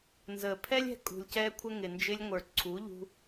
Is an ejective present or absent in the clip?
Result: present